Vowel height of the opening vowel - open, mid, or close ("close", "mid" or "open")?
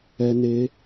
mid